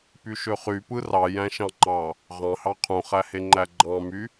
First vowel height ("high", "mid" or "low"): high